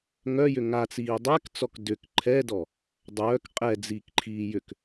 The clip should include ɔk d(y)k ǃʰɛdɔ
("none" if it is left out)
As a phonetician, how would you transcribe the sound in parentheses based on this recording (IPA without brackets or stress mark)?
ʏ